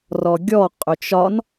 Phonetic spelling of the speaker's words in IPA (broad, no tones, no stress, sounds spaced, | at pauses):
r ɔ ɡʲ ɔ qʼ ø t͡ʃ ɒ n